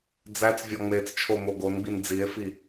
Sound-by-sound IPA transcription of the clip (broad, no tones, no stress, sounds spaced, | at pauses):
d͡z æ t͡s vʲ ɒ ŋ͡m e t͡s t͡ʃʰ o m o ɡ o n ɡ͡b i n d͡z i e̯ f i